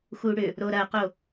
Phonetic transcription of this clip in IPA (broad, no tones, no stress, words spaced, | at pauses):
xuɽʏ | ɾoɾɐqo